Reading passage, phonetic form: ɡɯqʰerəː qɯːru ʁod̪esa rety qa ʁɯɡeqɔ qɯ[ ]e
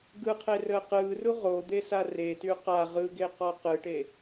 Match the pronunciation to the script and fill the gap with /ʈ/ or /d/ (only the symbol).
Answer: ʈ